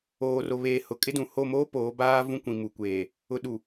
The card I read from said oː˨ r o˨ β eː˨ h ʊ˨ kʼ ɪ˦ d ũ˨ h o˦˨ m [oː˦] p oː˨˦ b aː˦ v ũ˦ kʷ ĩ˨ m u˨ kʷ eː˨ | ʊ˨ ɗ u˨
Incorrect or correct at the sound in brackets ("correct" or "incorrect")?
correct